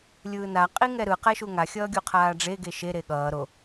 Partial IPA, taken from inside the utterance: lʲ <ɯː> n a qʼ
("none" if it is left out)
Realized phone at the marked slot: ɯː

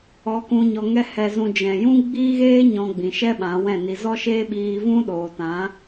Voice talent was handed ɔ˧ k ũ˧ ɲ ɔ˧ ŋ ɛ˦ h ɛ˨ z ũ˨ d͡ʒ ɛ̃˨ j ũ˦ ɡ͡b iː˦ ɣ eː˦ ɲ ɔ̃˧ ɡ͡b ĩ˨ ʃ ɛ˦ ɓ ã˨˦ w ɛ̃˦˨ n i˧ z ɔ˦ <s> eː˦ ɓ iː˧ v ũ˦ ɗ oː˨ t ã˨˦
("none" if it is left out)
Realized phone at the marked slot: ʃ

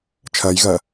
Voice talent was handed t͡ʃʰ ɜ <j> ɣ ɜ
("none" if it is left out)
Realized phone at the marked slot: j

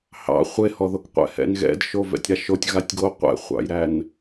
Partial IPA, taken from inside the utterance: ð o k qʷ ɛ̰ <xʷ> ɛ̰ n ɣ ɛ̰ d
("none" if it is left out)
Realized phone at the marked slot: h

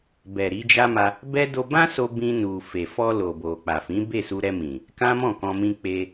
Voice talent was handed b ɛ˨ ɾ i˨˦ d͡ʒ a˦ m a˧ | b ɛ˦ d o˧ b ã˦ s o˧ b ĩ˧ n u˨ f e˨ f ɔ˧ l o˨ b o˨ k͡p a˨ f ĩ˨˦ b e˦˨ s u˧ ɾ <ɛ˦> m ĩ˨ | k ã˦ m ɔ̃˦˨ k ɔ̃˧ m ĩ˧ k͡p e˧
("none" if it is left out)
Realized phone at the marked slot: ɛ˧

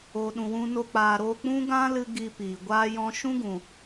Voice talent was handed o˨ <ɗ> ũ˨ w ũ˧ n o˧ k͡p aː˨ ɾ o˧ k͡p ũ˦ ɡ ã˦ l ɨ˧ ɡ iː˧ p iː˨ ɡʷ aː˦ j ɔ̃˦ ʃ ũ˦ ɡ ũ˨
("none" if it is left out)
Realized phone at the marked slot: ɗ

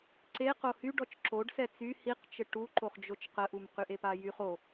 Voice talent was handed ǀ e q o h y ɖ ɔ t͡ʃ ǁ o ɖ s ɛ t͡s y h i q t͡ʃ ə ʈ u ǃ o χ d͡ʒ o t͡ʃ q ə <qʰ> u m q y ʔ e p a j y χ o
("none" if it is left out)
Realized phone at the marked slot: ʔ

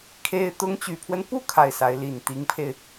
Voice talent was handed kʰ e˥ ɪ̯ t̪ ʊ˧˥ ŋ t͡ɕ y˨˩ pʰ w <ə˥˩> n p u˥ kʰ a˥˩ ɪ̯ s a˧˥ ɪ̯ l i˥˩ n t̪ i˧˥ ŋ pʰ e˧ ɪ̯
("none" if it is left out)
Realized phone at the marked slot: ə˦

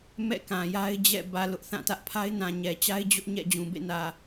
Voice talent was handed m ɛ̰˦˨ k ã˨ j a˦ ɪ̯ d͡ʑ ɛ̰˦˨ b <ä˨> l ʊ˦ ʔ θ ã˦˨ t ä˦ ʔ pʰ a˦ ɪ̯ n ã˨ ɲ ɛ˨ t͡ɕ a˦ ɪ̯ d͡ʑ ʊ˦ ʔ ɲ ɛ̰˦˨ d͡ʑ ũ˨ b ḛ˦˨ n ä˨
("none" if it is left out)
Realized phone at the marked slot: ä˨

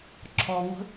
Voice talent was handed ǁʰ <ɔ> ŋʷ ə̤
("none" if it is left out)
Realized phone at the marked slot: ɔ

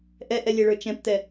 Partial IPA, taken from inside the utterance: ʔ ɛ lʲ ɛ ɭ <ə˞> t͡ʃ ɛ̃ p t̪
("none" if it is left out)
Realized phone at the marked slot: ə˞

